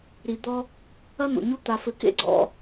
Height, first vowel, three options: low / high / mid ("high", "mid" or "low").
high